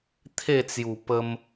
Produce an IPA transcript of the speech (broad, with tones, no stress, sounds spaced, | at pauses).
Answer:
t̪ʰ e˥˧ t͡s j u˨˩ p ə˧ m